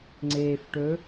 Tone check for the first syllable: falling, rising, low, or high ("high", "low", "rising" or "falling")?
low